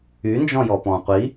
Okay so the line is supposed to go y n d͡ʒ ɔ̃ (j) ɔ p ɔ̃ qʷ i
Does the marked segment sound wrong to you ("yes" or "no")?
no